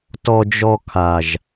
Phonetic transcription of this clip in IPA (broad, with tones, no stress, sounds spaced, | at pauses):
t ɔ˧ d͡ʒ ɔ˧ kʰ a˨ ʒ